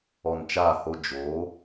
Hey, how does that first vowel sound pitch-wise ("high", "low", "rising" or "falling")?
low